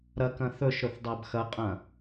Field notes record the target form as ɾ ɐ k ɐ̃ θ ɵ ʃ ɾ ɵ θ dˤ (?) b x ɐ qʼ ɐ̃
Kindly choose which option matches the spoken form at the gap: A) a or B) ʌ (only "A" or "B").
A